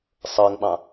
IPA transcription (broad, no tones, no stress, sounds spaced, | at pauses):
sˤ ɤ ŋ ɓ ɑ̃